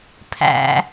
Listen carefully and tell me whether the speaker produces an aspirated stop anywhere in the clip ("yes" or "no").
yes